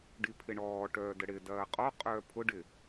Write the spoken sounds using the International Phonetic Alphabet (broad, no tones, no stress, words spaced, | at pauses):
ɖipʰɪɳɔː ʈœːdəɽɪ dɐːqʼɔ qʼœːpʰʊ ɖɪ